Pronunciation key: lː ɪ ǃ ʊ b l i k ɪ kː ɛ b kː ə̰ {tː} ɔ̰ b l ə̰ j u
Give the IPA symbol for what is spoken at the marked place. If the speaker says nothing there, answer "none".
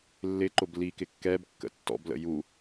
tː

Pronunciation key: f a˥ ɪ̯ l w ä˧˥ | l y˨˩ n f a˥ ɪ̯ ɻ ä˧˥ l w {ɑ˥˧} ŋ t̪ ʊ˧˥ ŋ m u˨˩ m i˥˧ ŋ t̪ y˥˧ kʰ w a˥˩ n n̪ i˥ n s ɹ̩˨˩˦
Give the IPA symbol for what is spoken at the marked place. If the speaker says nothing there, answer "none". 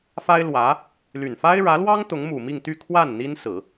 ɑ˥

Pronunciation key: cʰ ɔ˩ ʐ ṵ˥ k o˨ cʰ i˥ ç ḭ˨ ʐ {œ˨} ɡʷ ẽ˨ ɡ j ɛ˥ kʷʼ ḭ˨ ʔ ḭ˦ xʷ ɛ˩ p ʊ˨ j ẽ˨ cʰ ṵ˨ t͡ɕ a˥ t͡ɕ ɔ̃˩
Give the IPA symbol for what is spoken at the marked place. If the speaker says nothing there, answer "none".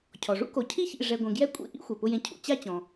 ɛ˨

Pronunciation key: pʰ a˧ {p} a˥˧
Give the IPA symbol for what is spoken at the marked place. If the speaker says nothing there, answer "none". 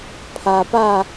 p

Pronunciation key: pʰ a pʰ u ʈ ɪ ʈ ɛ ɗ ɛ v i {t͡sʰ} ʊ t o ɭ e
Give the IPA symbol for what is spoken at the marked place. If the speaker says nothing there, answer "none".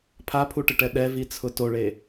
t͡sʰ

